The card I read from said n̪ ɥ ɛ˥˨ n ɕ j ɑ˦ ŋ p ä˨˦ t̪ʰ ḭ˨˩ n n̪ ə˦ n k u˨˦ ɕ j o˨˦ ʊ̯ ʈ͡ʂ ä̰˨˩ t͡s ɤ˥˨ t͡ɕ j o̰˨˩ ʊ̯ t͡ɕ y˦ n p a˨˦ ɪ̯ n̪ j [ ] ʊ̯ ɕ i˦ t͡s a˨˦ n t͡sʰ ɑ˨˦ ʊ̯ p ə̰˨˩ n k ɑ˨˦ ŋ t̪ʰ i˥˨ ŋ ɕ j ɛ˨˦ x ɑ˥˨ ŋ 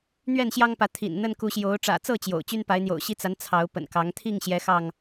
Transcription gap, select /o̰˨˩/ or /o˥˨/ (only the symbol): o̰˨˩